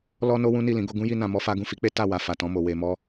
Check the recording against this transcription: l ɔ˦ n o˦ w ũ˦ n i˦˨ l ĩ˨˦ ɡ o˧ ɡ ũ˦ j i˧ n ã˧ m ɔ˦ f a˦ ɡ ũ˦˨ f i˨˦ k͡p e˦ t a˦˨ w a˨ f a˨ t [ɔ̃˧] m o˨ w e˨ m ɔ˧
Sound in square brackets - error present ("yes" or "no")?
no